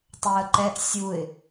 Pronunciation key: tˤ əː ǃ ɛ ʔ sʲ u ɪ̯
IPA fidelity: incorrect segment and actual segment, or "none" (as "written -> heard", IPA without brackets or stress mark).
none